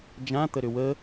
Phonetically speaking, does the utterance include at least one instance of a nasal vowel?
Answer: yes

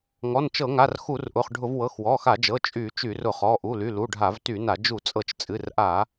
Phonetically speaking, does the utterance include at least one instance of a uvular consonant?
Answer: yes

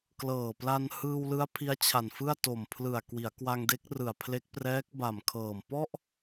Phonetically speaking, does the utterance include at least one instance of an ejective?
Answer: no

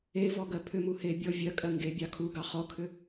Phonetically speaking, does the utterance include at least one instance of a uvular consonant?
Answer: yes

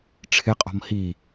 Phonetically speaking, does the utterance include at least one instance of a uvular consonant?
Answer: yes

